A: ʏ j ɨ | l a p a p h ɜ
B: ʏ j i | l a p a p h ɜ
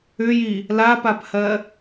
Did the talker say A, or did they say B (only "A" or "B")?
B